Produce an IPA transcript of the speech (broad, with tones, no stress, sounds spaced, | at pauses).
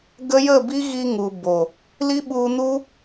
ɡ ə˦ j ə˦˨ b i˦ ɣ i˧ ŋ u˨ b o˨ | l i˦ ɓ u˧ n u˦